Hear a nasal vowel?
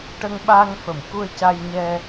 no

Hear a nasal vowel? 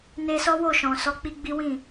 yes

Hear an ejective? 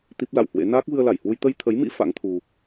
no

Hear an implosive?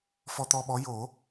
yes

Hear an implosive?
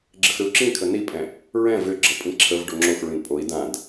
no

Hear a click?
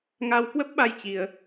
no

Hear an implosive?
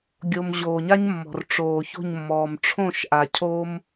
no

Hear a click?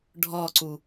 yes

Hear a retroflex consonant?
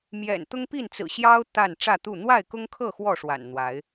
yes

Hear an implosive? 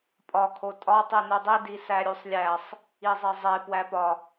no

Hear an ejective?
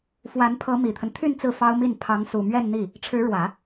no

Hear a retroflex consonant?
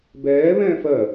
no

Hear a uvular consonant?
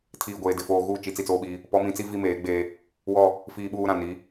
no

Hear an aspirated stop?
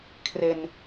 yes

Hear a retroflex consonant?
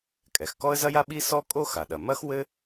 no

